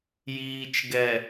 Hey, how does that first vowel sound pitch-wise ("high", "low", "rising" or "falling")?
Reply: low